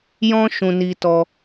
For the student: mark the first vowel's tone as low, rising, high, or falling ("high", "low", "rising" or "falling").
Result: high